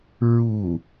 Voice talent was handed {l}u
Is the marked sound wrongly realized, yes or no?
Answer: yes